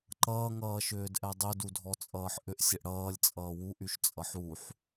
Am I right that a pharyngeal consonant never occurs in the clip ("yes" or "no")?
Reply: no